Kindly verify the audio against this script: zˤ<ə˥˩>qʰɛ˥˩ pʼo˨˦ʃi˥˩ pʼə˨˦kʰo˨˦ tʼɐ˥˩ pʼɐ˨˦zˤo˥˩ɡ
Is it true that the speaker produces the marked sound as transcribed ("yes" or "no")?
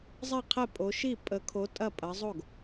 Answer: no